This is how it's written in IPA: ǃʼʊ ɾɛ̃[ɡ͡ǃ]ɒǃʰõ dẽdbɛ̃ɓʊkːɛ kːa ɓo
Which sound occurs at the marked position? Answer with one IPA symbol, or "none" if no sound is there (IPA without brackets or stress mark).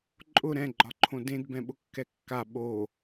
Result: ɡ͡ǃ